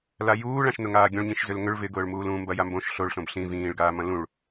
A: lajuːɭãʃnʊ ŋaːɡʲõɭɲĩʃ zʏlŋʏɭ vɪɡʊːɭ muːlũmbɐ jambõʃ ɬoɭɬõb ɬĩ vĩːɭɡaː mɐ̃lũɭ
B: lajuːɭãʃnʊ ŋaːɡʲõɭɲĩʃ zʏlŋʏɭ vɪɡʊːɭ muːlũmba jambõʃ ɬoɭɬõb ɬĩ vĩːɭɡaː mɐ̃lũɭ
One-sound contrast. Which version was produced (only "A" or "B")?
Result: A